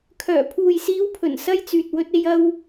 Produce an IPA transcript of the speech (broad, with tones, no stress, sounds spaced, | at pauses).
kʰ œː˨˩ pʰ uː˨ j s iː˨˧ w pʰ ɵ˨˩ n s ɐ˧ j t͡s yː˨ t̚ w ɵ˧ t̚ e˧ j ɐ˧ w